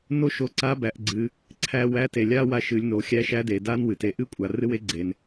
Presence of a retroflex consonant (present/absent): absent